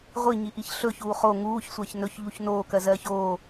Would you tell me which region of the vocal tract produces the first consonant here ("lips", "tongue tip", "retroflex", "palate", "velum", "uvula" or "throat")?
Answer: uvula